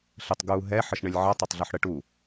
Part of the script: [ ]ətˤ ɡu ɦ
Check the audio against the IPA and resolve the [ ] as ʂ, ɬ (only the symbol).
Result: ɬ